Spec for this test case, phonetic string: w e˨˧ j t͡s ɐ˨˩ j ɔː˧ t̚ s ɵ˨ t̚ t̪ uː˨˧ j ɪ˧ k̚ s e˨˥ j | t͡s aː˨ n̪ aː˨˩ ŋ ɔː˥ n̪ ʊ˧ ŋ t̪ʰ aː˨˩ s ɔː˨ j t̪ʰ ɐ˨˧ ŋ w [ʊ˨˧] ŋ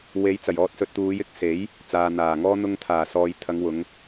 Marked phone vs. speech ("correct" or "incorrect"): correct